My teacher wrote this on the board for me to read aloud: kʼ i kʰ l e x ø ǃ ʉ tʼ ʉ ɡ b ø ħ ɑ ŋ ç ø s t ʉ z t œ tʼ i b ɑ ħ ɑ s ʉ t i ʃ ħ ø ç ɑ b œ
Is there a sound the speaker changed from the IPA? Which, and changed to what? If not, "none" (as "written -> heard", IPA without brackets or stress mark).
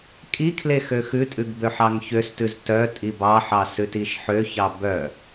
ǃ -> x